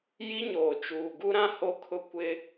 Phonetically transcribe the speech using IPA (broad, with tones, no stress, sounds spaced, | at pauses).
j i˦ ɲ oː˨ t͡ʃ uː˨ ɡ u˦ ɾ ã˦ h o˦ kʰ ʊ˦ kʷ ɪ˦